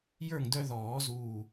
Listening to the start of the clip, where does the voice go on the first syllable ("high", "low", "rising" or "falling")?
falling